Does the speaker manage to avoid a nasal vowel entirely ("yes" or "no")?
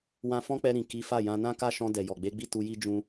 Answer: no